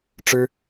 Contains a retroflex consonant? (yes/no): yes